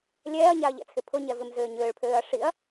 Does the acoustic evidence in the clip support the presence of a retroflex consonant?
yes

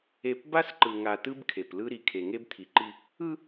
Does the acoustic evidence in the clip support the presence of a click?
yes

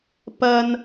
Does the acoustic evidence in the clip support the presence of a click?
no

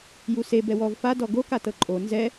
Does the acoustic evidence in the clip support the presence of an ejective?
yes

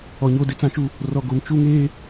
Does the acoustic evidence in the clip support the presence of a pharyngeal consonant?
no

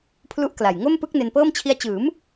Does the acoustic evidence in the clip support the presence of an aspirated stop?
yes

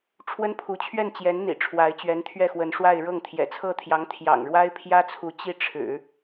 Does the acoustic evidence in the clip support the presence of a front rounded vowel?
no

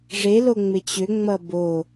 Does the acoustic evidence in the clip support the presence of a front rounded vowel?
yes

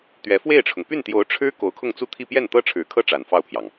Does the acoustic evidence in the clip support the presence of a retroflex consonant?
yes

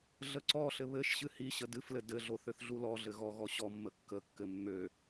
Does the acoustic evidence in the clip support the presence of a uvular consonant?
no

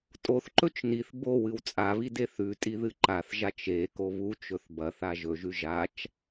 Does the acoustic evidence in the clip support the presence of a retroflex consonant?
no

